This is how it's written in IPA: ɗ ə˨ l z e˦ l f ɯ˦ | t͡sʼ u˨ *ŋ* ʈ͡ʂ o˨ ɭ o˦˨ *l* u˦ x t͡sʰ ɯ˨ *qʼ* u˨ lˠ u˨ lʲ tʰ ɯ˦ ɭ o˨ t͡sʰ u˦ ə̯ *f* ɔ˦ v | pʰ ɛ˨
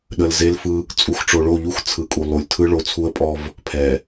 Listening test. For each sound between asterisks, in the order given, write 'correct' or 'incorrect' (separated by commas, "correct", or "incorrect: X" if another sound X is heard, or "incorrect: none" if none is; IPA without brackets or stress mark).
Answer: incorrect: x, incorrect: ʎ, incorrect: kʼ, incorrect: pʼ